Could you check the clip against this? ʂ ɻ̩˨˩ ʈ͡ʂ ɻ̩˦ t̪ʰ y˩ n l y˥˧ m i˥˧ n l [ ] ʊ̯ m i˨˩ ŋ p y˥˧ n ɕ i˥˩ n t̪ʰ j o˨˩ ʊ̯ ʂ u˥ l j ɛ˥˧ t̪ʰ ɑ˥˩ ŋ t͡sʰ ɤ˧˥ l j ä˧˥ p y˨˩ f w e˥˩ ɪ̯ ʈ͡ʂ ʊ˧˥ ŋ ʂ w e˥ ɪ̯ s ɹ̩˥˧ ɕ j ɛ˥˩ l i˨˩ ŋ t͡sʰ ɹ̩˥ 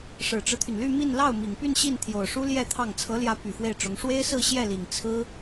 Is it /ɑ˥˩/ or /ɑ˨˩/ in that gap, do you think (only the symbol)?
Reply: ɑ˥˩